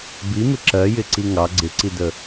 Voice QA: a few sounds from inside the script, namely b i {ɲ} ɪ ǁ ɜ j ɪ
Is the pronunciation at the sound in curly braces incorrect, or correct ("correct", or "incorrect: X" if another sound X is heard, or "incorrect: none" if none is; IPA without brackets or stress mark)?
incorrect: m